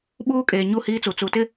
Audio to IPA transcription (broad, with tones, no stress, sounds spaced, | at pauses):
ɓ uː˦ kʼ eː˨ ɲ u˦˨ h iː˦ t͡s u˨ t͡s u˨ t ɪ˦